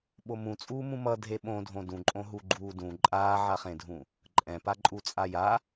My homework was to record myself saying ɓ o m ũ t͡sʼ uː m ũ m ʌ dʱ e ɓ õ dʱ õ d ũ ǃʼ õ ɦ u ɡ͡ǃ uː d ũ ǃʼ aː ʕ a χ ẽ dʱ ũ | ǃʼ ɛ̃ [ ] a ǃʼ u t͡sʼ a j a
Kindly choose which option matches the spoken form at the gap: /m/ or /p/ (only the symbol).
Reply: p